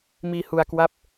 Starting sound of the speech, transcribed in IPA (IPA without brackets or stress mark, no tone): m